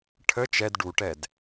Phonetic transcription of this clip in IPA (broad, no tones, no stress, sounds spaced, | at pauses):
ʈʰ ə t͡ʃ ɛ d ɖ u ʈ ɛ d